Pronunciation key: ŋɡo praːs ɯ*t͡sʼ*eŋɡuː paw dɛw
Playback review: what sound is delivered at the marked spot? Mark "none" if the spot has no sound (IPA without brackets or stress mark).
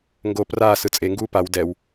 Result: t͡sʼ